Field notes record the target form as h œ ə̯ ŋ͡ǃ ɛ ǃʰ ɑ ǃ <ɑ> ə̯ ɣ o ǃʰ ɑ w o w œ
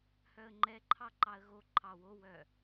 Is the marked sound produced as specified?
yes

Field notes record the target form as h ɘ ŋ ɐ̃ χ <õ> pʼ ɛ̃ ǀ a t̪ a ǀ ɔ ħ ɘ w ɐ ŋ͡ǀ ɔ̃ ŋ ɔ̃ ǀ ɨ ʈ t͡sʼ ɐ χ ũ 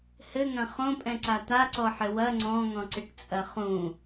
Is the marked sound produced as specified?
yes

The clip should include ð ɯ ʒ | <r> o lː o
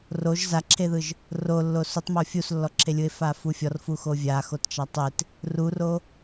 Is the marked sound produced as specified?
yes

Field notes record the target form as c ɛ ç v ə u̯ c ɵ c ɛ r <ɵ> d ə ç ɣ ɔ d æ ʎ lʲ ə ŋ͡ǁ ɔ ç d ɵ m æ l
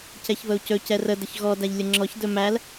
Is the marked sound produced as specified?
no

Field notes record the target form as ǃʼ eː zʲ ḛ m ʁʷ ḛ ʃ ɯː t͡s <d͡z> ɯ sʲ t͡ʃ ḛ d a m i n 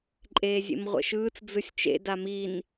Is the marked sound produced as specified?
yes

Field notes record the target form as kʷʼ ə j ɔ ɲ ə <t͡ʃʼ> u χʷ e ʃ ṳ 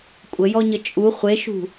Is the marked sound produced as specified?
yes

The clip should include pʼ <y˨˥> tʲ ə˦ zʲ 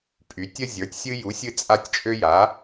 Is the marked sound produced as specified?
yes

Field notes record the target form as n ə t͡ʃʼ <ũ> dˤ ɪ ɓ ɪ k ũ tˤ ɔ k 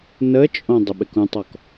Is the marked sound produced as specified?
no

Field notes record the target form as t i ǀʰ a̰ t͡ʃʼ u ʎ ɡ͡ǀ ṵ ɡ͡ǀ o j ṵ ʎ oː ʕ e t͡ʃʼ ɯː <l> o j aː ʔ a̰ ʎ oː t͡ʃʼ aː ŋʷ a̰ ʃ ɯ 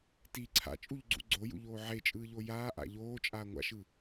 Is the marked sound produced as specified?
no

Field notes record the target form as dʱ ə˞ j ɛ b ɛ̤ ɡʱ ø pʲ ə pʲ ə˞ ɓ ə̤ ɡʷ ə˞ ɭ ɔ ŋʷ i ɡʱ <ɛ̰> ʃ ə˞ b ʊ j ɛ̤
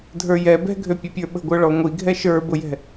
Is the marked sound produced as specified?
no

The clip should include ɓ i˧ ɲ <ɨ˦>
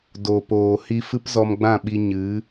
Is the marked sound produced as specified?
no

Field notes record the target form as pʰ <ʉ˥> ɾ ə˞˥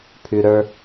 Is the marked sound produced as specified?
yes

